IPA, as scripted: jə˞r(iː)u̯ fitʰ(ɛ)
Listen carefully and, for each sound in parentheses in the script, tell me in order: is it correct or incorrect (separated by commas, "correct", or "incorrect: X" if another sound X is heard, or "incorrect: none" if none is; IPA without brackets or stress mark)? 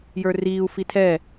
correct, correct